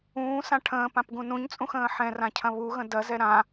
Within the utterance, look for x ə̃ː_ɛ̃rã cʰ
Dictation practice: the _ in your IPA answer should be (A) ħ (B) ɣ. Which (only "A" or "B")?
A